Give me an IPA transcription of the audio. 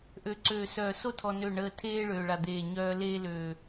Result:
ʔ ø˨ ǀ øː˨ s œː˨ s o˦ tʰ ɔ˨ n ø˦˨ ɳ əː˦ tʰ eː˦ ɭ øː˨ ɭ a˨ d̪ eː˨ ɲ œː˦ l eː˦ l øː˨

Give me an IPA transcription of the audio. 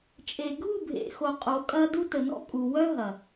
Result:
t͡ʃʼ e˨ ɡʱ u˦˨ bʱ ḛ˨ x o˨ qʼ o˨˦ kʼ ɐ˦ d u˦ t ə˨ n ɔ̰˦ kʼ u˨ w œ˦ ɦ ɐ˨

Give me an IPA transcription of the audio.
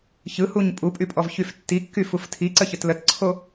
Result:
ç ɯ h u ɲ pʼ u pʼ y pʼ ɔ v ç y f tː i kː y f u f tʰ i ǀ ə ç ə t l ə t ǀʰ o

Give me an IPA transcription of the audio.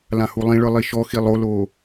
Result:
l ã h u lˠ ĩ ɭ ɯ lˠ i ʃ ɔ x i lˠ o l o

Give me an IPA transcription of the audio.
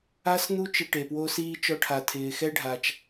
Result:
a˦ s n̪ u˦ t͡ʃ ɪ˦ ʈ e˩ p w o˦ s iː˥ t͡ʃ ɔ˦ ʈʰ a˨ tʰ ɪː˨ x ɛ˥ ɖʱ a˨ t͡ʃ

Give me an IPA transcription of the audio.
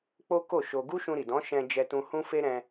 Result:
k͡p o˦ k o˦˨ ʃ o˧ ɡ u˦ ʃ ũ˧ ɾ i˨ d ɔ̃˨˦ ʃ ɛ̃˧ d͡ʒ ɛ˧ t ũ˧ h ũ˦ f e˦ ɾ ɛ̃˧

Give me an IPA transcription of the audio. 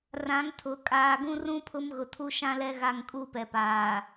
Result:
r ã˨˦ ŋ tʰ ʊ˨ kʼ aː˨ ɡ ũ˦ r ũ˦ pʰ ʊ˦ m ɣ ʊ˨ tʰ u˦ ʃ ã˦ l ɛ˦ ɣ a˦˨ ŋ kʼ u˦ p ɛ˨ p aː˨

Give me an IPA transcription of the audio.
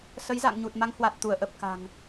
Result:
s ə˨˦ j z a̰˧˨ ŋ ɲ u˨˩ t̚ m a˨˦ ŋ h w a˨˩ t̚ t̪ u˧˩ ə̯ ʔ ə˨˩ p̚ k a̤˨˩ ŋ

